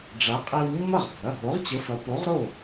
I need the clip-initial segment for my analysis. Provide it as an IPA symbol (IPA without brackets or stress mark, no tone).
ɖ͡ʐ